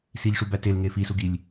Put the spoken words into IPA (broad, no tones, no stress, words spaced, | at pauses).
siʎʂubæ telŋe fisuɡilʲ